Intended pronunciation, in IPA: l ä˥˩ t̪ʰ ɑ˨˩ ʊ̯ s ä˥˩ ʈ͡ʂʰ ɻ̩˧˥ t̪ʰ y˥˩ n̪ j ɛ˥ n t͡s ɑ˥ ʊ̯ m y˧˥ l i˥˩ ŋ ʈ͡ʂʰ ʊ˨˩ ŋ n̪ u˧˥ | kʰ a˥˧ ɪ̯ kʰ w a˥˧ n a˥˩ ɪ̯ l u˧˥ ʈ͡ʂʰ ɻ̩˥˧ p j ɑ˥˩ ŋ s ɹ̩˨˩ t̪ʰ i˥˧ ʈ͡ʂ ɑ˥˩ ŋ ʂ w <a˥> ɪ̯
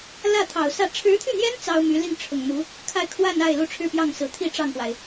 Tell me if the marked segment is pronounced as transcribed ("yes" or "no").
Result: no